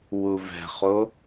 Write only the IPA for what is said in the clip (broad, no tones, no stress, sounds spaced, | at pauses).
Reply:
w u v ɛ̤ χ o